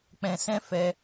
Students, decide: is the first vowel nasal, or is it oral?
nasal